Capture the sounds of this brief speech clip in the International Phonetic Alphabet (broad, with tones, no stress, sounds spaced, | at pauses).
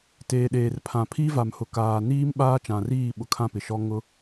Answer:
t eː˨ ɗ eː˨ r pʰ ã˨ pʰ iː˦ v a˨ m h ʊ˨ k aː˨ n iː˦ m ɓ aː˦ t͡ʃ ã˨ r iː˦˨ ɓ ʊ˨ kʰ ã˦ p ɪ˨ ʃ ɔ˦ ŋ ʊ˦